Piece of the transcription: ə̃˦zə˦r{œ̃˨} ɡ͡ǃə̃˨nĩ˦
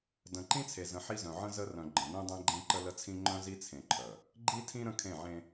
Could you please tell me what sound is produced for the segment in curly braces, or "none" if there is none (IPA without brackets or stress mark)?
œ̃˨